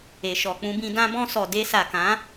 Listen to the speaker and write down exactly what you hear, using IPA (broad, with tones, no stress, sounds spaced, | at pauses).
e˨ ʃ ɔ˨ k͡p ũ˧ b ĩ˧ d ã˧ b ɔ̃˧ s ɔ˨ d e˧ s a˨ k ã˨˦